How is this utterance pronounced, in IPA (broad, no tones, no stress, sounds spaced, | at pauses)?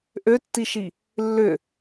ʔ ø tː i ʃ i | lː ʏ